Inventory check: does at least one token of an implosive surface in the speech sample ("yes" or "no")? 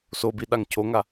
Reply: yes